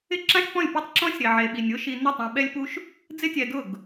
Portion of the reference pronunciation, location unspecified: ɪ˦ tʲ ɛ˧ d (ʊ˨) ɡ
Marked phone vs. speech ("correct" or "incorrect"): incorrect